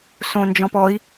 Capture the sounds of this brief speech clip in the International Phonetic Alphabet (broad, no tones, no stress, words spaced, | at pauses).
sõnd͡ʒɔ̃pɔi̯